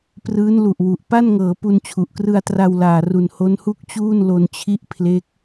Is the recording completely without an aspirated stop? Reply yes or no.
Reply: no